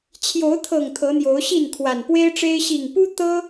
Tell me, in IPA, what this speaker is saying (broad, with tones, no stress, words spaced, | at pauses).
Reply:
t͡ɕʰjo˨˦ʊ̯t̪ʰɤ˨˩ŋ t̪ʰɤ˨˦n̪jo˨˦ʊ̯ɕi˥˨n kʰwa˨˩npwe˦ɪ̯ʈ͡ʂe˦ɪ̯ ɕi˨˩ŋpu˦ t̪ɤ˦